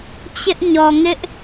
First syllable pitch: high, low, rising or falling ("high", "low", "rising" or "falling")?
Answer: high